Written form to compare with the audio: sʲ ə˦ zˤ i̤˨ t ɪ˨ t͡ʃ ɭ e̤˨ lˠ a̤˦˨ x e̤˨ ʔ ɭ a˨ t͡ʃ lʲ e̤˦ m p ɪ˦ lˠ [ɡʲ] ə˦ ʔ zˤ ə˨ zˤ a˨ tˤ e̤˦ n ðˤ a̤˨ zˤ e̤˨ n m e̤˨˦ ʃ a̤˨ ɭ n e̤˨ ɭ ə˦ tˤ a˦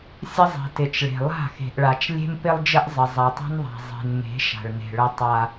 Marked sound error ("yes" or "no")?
yes